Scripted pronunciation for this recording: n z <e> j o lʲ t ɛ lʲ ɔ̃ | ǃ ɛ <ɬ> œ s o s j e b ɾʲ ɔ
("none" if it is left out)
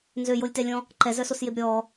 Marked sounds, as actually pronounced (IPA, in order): ø, z

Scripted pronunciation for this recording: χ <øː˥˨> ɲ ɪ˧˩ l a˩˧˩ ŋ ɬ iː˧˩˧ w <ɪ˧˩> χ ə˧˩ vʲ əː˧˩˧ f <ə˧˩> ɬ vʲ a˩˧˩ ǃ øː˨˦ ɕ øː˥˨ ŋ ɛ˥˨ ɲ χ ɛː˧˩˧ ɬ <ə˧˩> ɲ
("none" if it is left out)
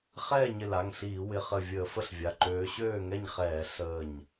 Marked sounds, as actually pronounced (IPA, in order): ɛː˥˨, ɪ˩˧˩, ə˥˨, əː˧˩

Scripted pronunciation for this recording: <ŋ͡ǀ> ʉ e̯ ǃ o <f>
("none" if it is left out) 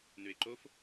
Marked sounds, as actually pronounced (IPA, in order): n, f

